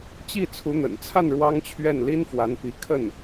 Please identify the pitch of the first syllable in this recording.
falling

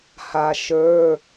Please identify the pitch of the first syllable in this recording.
low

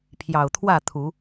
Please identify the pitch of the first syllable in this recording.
low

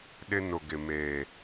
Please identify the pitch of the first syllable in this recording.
high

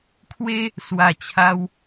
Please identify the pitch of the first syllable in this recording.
high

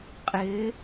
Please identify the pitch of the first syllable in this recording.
rising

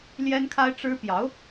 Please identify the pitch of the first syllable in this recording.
high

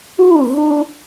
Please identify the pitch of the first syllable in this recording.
falling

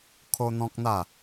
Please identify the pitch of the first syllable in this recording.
high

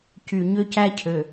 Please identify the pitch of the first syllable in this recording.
low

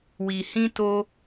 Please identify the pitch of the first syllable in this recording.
low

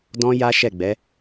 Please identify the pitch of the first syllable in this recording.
high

